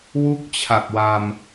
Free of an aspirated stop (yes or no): no